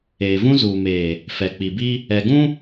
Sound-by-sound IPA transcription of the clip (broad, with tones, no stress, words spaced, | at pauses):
eː˨vũ˦zuː˨meː˨ | fɛ˨k͡pi˨bi˦ | ɛ˨ɡũ˦